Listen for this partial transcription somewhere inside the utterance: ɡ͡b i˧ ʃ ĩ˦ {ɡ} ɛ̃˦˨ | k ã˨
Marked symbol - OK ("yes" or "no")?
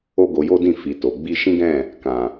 yes